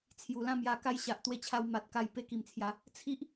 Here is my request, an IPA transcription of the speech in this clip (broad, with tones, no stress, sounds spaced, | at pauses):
t͡sʰ j u˨˩ l ã˥˧ m j a˧ k a˦ j ɕ a˨ ʔ t̪ w e˧ t͡ɕʰ a˧ w m a˨ t̚ k a˧ j p e˧ k i˨˩ m t͡sʰ j a˨˦ | t͡sʰ i˦ ʔ